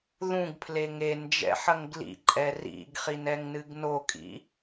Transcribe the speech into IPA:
ð ũ ɡ pʰ l e ŋ e n d͡ʒ ɛ̰ ħ ɐ ŋ ɡ l ḭ ǃʼ ɛ r ḭ ɡ χ i n ɛ ŋ n ɨ ɡ n o kʼ ḭ

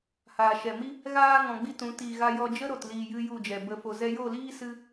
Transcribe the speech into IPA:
h aː˨ ʃ ɛ˨ m i˦ | ɣ aː˦ ŋ ɔ̃˧ ɡ͡b i˦ t ũ˨˦ t iː˨ ɣ a˧ j ɔ˧ d͡ʒ ə˦ ɾ o˨ t l iː˨ j ɨ˧ j u˦˨ d͡ʒ ɛ˨ b ə˧ f o˨ z ɛ˧ j o˦˨ l iː˦ s ɨ˧

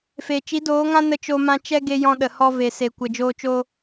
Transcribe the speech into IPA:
f e˨ t͡ʃ i˨˦ d oː˨˦ ŋ ã˦ n ə˧ t͡ʃ o˧ m ã˧ t͡ʃ ɛ˦ ɡ e˧ j ɔ̃˧ ɗ ə˨ h ɔ˧ v e˨ s e˨ kʷ ə˨ d͡ʒ oː˧ t͡ʃ o˧

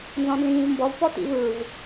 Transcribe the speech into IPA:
n z ɔ̃ n z ĩː v m b ɔ v p ɔ t ḭ v ɯ v

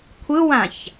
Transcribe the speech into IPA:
kʷʰ ɯ w ã ç

